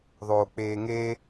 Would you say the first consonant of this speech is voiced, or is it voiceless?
voiced